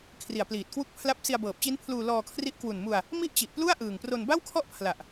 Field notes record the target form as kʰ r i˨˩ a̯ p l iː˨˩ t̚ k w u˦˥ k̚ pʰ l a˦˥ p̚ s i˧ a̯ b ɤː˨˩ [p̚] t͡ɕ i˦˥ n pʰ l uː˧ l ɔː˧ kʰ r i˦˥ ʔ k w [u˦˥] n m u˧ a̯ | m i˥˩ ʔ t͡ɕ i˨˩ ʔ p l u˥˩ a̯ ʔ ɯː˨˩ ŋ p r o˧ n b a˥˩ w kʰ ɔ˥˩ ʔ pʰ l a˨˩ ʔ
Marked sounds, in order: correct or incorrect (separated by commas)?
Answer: correct, incorrect